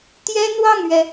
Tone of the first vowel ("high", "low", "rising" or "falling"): high